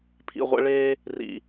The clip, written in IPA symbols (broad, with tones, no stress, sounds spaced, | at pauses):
pʰ ḭ˨ ʁʷ ɛ̰˦ ɭ eː˦ | r ḭ˨